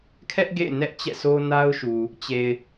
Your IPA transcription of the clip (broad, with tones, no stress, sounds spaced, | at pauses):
kʰ ɛ˦ ʔ ɡ ḛ˦˨ ɪ̯ n ɛ˦ ʔ t͡ɕ ɛ̰˦˨ s o˦ n a˦ ʊ̯ ʃ u˨ | t͡ɕ e˨ ɪ̯